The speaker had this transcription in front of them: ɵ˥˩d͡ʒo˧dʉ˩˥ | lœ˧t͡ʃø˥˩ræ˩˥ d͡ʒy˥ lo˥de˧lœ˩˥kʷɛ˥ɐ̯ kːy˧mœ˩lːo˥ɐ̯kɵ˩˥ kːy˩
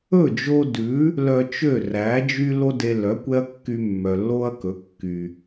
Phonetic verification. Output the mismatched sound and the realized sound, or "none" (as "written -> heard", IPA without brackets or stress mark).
m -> mː